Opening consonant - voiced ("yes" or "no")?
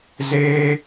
yes